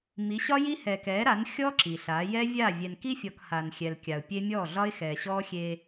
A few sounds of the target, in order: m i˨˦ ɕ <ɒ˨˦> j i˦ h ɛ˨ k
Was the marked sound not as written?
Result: yes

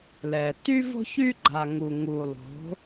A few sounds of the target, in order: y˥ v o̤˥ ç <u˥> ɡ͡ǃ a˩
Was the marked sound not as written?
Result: yes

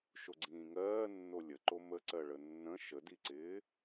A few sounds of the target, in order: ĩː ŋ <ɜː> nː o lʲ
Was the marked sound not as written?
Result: no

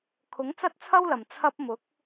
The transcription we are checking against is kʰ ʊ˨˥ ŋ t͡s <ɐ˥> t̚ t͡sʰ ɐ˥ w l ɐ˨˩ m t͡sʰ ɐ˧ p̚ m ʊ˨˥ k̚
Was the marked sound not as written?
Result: no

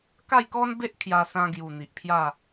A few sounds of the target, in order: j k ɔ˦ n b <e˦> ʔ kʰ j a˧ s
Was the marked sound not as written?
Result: no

